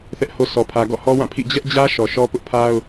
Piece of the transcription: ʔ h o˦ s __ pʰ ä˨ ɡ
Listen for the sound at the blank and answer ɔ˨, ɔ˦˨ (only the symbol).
ɔ˨